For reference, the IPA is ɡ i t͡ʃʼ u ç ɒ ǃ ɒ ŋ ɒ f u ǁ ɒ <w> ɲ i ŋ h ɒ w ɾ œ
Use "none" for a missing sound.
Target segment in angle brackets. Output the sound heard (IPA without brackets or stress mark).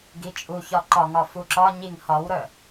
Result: none